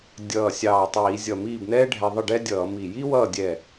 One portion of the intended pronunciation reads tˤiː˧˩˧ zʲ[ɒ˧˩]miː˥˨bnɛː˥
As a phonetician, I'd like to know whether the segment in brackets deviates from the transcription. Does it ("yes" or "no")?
yes